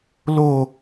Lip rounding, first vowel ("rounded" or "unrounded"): rounded